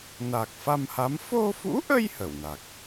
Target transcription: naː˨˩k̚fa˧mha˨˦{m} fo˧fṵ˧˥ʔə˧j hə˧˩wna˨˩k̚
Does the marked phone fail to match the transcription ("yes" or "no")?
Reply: no